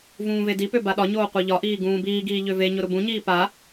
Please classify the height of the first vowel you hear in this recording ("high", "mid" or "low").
high